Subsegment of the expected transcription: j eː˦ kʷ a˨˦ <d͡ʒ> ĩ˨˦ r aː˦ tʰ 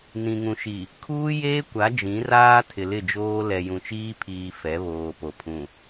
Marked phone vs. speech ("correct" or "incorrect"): correct